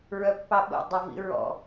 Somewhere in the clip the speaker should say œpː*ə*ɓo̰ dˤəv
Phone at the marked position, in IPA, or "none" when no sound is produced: ɑ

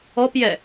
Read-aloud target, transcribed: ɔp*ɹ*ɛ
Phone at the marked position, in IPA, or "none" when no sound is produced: j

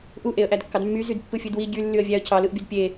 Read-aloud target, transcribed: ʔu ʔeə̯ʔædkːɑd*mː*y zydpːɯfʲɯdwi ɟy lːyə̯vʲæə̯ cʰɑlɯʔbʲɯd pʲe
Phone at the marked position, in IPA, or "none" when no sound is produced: mː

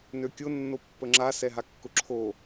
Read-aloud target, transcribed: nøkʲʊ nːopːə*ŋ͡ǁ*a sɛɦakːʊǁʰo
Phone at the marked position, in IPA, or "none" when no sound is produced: ŋ͡ǁ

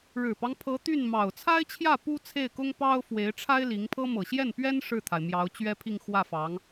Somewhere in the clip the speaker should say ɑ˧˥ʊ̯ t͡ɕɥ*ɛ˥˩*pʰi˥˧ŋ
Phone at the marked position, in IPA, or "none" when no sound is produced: ɛ˥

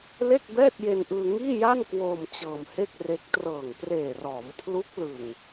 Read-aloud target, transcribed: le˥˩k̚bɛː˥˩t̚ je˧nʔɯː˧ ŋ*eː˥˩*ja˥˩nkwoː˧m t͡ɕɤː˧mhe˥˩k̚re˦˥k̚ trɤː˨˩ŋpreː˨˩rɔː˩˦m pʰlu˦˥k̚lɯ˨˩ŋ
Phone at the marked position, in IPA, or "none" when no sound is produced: iː˥˩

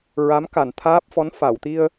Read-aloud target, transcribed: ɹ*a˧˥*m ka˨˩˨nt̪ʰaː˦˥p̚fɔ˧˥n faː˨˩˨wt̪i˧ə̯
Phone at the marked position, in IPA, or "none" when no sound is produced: a˧˥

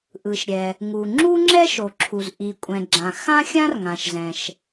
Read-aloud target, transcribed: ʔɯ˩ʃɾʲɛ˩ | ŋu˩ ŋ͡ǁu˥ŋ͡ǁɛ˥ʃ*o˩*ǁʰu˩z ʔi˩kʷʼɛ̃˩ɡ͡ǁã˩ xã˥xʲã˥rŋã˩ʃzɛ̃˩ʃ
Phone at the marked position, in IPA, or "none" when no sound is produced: o˩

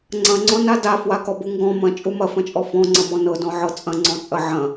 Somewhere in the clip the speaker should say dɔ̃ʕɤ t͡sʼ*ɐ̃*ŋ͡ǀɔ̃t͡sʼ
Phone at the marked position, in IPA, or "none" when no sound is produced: ɐ̃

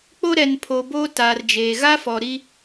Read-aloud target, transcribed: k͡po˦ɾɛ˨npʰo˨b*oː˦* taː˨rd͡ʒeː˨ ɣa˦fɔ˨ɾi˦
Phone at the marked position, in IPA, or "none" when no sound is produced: oː˦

